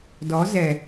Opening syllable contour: rising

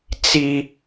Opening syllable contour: high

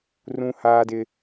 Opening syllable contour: high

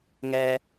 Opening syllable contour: high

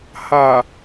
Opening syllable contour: low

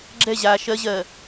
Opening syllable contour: falling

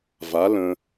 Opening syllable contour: rising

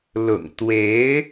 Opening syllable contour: low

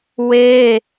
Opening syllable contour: high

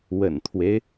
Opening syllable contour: low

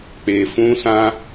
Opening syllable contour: low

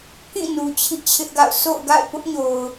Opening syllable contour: falling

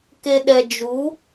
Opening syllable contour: low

